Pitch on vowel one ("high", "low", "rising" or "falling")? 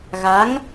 rising